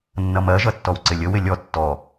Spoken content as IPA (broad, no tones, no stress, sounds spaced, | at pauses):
nː ʌ m ɜ ʒ ʌ tː ɔ w ǀ ɪ lʲ ə w ɪ lʲ ɔ tː ɔ